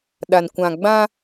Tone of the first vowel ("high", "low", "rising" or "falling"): low